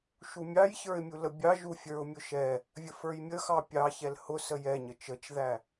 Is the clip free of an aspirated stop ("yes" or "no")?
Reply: yes